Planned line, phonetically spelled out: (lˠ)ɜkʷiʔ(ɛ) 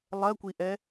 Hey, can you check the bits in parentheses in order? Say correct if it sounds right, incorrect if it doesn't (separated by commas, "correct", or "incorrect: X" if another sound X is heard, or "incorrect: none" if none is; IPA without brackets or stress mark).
correct, correct